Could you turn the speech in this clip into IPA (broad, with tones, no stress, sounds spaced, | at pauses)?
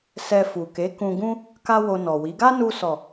s ɛ˧ f u˨ k e˨˦ k ũ˧ ɡ ũ˦ | k a˦ w o˧ n ɔ˨ w i˨˦ ɡ a˦ n u˧ s ɔ˨